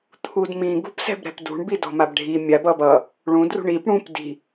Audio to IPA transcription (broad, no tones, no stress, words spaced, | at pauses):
t̪ʰudmĩ ɡṳpsɛ̤bɾɛ̤pdṳɳ bidɔ̤mabɖʱi mʲab ʌbʌ | ɭũ drṳɳip ɽũp di̤